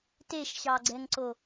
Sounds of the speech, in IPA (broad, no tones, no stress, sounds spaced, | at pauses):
t e ʃ ɕ ɑ ɡ͡ǀ ɛ ŋ ǀ o